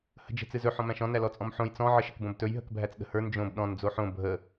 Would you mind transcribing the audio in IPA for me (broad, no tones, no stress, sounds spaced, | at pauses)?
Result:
h ə̤ d͡ʒ ə̤ t͡s ɨ z ɵ ħ ɔ̃ m æ̃ ʃ ɔ̃ n æ l ɔ t͡sʼ ɔ̃ m ħ õ j t͡s ɔ̃ ʕ ə ʃ ə̤ k b õ b t ɵ j ɦ ə̤ k bʱ æ t͡s ɗ ə̤ h ə˞ n d͡ʒ õ b ɗ ɔ̃ n d͡z o ħ õ bʱ ə